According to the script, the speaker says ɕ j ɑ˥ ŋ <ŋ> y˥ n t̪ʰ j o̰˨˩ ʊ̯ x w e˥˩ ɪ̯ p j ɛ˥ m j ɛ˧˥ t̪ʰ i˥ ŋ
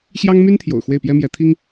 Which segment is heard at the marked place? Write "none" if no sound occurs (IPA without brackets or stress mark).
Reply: m